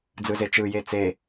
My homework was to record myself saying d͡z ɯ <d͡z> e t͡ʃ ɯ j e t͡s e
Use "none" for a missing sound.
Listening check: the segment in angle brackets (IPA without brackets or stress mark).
z